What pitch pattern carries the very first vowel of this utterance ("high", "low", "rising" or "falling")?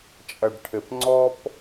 low